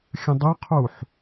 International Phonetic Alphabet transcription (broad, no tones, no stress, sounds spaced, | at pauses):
xʲ ə̃ dˤ ɵ qʰ u ħ